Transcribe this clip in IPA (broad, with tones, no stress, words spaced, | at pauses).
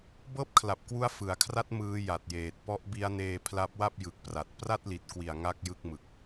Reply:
bɤː˥˩p̚kʰla˨˩p̚kwu˦˥a̯ fɯ˩˦a̯kʰra˦˥t̚ mɯː˦˥ja˨˩t̚jeː˨˩t̚ pɔ˦˥ʔbi˦˥a̯neː˧ pʰla˦˥p̚wa˥˩p̚jɯ˨˩k̚ pra˨˩t̚ pra˥˩t̚li˨˩t̚kwi˨˩a̯ ŋa˥˩k̚jɯ˥˩k̚mɯ˨˩k̚